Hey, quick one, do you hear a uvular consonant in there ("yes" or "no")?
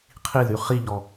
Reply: yes